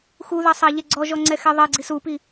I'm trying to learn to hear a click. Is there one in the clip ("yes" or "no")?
yes